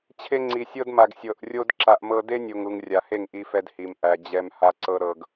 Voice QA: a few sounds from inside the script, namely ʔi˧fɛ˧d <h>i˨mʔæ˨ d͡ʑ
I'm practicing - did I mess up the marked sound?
no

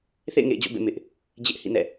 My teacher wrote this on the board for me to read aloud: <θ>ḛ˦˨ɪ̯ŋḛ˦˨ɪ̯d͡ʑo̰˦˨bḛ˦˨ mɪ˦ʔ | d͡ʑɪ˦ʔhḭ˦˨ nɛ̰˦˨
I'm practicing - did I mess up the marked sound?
no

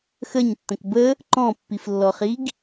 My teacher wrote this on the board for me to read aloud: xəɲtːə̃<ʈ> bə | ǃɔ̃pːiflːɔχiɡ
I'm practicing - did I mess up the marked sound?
yes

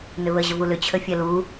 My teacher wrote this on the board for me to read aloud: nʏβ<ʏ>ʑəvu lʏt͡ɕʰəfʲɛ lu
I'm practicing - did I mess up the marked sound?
yes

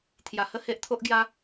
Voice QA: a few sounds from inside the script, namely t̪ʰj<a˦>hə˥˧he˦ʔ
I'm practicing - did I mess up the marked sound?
yes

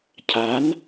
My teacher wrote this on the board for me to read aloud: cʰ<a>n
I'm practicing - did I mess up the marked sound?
no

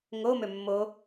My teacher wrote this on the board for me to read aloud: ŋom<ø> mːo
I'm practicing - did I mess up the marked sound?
no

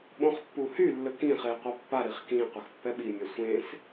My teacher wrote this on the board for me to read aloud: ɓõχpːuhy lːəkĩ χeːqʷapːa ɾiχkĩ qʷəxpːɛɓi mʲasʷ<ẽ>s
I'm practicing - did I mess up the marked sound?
no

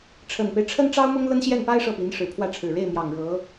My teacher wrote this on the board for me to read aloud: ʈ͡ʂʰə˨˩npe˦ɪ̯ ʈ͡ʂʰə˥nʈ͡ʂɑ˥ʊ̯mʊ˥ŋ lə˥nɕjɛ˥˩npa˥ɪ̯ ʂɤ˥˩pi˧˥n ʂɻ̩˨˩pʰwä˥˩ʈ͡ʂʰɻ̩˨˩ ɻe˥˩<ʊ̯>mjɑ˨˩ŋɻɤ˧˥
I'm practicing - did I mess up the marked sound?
yes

